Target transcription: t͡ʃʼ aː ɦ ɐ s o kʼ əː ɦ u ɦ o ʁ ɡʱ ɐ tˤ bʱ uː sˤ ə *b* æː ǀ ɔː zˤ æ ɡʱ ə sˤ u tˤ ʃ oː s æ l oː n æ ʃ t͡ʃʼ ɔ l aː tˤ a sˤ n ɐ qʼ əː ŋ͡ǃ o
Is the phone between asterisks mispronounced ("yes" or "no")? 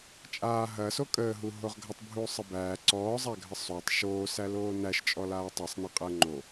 no